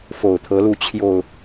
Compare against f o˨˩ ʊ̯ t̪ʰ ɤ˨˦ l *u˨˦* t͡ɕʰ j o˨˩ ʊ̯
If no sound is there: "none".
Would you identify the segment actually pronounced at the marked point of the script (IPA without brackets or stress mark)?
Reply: u˨˦